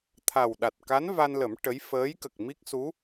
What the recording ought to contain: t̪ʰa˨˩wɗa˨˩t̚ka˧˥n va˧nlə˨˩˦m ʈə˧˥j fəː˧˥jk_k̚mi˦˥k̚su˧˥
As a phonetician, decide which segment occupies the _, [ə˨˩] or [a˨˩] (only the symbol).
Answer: ə˨˩